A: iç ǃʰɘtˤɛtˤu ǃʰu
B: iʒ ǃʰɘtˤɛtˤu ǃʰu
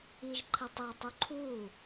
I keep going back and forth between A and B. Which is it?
B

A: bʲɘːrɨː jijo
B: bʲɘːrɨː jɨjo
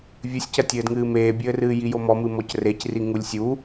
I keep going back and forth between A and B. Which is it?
A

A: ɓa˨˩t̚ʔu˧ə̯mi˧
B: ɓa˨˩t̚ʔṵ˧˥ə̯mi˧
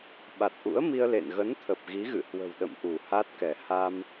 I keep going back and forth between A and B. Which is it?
B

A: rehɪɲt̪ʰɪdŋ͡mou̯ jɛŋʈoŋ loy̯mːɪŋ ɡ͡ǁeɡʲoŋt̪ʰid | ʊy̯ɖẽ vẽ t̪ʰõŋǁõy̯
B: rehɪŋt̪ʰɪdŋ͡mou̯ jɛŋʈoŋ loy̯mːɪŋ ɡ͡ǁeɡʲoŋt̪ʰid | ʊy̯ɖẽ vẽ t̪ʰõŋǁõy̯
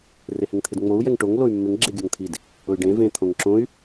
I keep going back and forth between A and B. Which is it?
B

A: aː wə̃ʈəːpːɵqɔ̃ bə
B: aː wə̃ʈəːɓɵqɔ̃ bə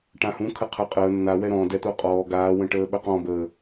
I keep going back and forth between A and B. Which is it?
B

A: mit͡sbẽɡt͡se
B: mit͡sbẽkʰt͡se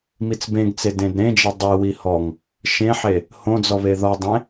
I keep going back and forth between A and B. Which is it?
A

